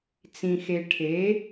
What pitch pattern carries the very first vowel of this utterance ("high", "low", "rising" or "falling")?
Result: low